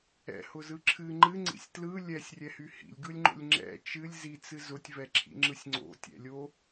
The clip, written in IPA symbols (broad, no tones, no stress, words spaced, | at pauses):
ɛ̰hʊzɯ ǁʰɨ ŋ͡ǃɨŋ͡ǀḭsʲ tlɯ lʲɛsʲrʲɛhy hḭlʲɡɯlʲŋ͡ǃo̰lʲ ŋ͡ǁɛ̰ t͡ʃɨlʲ zit͡sɨ zʊtʲvɛǁʰḭŋ͡ǁɯsʲ ŋ͡ǀo̰tʲɛ̰lʲo